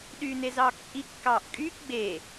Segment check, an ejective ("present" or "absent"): present